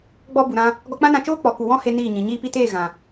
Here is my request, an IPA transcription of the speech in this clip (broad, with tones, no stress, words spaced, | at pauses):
ɡ͡bɔ˦bu˨ɾã˦ | ɡɔ˧k͡pã˦nã˧t͡ʃoː˦ k͡pɔ˨ku˨ wɔ̃˦he˧ niː˦˨ɲĩ˨ ɲiː˧pi˧teː˦˨ ɣã˨